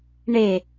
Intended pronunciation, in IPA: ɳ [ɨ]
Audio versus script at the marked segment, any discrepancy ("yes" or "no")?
yes